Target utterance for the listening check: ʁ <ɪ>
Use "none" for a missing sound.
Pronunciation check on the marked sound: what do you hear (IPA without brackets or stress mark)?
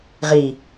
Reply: i